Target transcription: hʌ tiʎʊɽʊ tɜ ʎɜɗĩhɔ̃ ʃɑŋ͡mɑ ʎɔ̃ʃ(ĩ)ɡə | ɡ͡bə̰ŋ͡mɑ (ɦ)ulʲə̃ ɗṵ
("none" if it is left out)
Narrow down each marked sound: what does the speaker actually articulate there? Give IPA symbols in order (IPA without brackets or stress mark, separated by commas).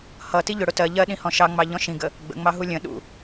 ĩ, ɦ